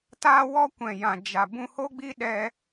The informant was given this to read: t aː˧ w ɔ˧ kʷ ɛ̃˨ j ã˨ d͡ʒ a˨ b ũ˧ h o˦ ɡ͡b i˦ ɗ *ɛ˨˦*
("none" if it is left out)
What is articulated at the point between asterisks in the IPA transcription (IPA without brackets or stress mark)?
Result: ɛ˧